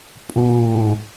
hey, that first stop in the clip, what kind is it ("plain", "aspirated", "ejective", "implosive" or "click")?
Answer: ejective